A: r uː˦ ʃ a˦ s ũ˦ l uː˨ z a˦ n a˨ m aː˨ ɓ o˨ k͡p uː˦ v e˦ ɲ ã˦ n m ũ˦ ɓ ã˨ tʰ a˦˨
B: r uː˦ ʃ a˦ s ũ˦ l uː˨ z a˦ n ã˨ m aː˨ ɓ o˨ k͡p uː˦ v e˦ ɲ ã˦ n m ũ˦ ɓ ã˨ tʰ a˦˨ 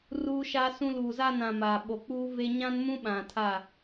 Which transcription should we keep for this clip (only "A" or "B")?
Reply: B